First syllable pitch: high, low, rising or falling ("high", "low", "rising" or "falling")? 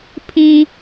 high